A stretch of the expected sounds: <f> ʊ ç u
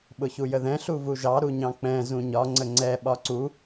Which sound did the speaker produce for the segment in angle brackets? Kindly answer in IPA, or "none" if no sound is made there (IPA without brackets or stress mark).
ɓ